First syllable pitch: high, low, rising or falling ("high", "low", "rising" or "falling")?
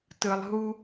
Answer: low